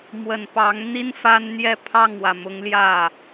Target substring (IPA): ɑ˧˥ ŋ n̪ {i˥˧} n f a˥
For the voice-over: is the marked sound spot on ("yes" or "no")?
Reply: no